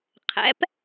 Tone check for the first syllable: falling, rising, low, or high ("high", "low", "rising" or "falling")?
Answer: rising